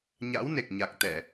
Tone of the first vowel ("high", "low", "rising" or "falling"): rising